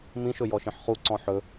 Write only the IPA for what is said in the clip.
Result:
m ĩ ʃ ɵ j ɔ ʃ ĩ ħ χ u ǀ ɔ̃ ħ ɵ

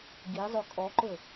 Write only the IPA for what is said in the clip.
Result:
ɡ i zˤ ɵ kʼ ɔ ǃ ɵ

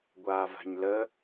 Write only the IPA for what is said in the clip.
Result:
ɡʷ aː v a̤ ɲ l ə

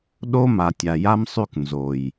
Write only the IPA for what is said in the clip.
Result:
ɗ o˦ m a˨ tʲ a˨ j a˦ m sˤ ʉ˦˨ k n z o˨ j

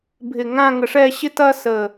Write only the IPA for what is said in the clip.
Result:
bʱ ɪ˧˩ ŋ ã˥˧ ŋ ə˧ ʂ ɛ˥˧ ɕ ɪ˥ t ɐ˥ s ə˧˩

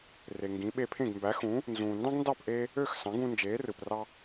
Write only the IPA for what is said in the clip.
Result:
r e˩ ŋ ɡ ĩ˩˥ ɓ e˧ pʰ ẽ˥˩ ɡ m b æ˩˥ x ũː˩˥ | n z ũː˩ n d ɑ̃˥ ɡ n d ɑ˥˩ p ʔ eː˧ | ø˥˩ x s ɑ̃˩˥ ɡ ũ˧ n d͡ʒ eː˩˥ r ɯ˩ p r ɑ˧

